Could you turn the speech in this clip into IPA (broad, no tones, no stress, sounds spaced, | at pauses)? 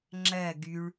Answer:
ŋ͡ǁ ɜ ɡ y ɭ